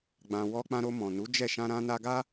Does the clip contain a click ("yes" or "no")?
no